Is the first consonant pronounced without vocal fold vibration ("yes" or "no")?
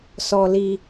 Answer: yes